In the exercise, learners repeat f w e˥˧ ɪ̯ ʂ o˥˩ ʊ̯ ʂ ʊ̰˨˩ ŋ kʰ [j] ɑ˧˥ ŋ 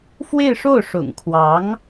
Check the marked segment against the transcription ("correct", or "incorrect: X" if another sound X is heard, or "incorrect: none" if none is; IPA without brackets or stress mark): incorrect: w